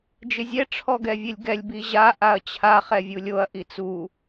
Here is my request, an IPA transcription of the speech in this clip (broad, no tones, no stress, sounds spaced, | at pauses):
d͡ʒ ɪ zʲ ɛ ʈ͡ʂʰ ɔ ɡ ɛ vʲ e lʲ ɡ ɛ lʲ b i ʑ a ʔ a ɐ̯ t͡ɕʰ a χ ɛ vʲ u lʲ o ɐ̯ ʔ i t͡s u